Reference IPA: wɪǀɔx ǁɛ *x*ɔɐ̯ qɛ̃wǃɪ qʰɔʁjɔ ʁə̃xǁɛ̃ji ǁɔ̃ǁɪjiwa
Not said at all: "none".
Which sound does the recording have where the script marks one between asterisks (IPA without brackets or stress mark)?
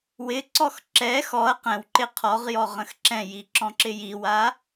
x